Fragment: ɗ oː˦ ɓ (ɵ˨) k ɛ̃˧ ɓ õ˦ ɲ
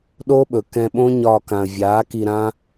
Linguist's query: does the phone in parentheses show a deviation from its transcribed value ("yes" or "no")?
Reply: no